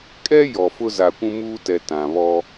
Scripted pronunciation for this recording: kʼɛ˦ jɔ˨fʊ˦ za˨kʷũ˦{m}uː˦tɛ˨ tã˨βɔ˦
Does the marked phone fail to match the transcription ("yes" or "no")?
no